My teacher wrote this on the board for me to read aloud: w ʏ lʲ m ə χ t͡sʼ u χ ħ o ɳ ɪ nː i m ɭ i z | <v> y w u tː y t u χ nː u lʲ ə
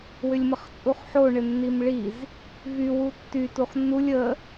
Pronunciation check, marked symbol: correct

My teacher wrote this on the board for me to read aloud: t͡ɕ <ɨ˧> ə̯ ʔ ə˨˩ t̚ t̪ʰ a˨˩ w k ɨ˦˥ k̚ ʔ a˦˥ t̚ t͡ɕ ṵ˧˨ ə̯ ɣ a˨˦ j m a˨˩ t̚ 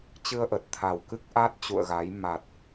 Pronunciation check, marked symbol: correct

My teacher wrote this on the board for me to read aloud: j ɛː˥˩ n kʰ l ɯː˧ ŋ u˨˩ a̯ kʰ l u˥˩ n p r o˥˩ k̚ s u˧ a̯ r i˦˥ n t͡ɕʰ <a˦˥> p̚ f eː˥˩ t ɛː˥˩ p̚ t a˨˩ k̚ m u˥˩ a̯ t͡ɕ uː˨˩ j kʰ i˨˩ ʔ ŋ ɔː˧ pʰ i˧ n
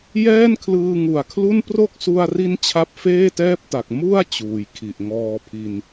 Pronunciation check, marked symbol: correct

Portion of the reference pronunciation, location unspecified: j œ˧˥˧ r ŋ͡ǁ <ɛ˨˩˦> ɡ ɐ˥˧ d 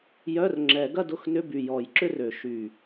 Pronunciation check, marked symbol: correct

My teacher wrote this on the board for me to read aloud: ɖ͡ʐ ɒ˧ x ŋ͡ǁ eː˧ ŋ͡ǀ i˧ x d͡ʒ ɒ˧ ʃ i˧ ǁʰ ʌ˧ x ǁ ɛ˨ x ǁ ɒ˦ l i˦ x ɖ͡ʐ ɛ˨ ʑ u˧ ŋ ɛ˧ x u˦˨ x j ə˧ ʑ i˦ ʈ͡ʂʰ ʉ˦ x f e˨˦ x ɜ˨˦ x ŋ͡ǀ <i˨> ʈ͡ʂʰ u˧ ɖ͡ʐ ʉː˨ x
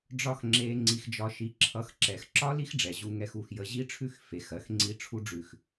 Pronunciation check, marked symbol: incorrect: i˦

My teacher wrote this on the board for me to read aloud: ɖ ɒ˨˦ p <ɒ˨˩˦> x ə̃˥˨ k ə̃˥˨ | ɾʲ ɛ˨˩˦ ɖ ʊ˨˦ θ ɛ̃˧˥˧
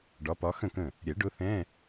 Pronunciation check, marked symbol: incorrect: ɒ˨˦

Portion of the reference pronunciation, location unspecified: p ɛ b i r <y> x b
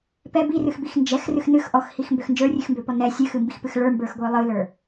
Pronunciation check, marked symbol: incorrect: ɨ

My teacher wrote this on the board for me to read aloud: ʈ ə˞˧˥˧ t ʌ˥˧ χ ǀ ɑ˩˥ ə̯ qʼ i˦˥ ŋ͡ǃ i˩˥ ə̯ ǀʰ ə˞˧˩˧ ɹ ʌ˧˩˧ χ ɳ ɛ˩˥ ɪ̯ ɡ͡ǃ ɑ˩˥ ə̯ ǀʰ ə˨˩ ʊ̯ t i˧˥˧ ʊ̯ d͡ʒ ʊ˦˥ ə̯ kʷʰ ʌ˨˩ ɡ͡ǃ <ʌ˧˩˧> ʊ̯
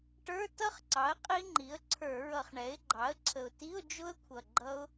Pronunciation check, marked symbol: incorrect: ʌ˦˥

